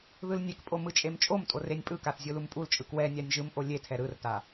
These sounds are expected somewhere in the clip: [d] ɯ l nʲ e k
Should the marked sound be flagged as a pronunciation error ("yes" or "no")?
yes